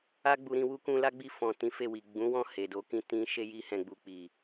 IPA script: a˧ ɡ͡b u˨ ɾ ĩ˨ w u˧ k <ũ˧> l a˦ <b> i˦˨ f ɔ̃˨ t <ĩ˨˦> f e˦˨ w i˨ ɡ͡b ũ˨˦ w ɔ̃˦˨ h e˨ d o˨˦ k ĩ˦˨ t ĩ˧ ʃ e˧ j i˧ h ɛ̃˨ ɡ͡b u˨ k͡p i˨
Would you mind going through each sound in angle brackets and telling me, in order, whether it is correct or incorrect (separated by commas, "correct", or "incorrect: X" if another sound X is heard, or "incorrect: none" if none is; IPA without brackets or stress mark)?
correct, incorrect: ɡ͡b, correct